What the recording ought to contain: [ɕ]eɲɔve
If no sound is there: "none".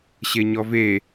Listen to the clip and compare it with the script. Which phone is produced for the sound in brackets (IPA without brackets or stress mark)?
ɕ